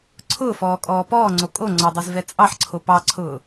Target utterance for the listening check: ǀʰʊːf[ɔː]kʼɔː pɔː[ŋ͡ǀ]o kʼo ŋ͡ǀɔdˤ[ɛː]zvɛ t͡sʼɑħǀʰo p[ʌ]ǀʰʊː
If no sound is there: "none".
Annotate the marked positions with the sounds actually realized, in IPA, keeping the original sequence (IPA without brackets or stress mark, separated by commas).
ɔː, ŋ͡ǀ, ɛ, ɑ